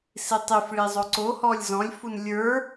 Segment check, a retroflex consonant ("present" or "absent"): present